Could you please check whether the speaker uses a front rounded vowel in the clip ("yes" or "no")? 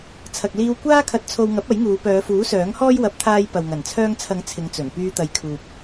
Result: yes